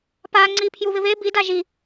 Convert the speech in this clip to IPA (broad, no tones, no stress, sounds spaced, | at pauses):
p a ŋ͡ǀ i pʰ j u β ɪ β e b i d a ʒ i